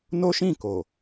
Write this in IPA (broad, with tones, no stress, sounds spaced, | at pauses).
n o˦ ʃ ĩ˦˨ k o˨